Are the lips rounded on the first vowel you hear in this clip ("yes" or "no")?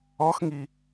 yes